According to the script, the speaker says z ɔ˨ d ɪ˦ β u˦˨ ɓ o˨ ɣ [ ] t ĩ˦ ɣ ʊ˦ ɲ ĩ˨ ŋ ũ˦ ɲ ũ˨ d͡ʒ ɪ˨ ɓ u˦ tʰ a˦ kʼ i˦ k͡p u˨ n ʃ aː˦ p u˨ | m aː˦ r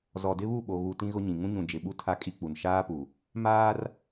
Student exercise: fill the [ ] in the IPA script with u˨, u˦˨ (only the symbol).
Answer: u˨